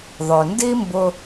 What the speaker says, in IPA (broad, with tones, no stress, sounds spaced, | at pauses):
ðˤ œ˩ n d i˥ m b ʊ˧